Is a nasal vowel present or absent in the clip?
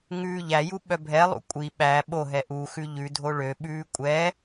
absent